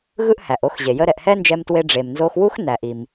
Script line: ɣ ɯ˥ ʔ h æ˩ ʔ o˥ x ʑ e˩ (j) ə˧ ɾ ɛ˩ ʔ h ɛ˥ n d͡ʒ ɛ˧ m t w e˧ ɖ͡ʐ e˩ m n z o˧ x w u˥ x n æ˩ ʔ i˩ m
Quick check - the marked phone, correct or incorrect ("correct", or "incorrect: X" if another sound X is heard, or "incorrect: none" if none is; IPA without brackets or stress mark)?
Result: correct